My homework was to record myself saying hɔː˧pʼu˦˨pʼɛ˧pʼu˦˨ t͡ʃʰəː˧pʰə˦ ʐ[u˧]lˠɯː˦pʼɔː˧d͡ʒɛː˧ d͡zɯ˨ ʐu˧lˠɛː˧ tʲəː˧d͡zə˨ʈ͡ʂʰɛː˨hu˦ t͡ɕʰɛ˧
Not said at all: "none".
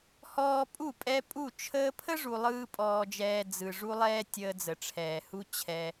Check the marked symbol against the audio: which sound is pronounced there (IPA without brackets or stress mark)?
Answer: u˧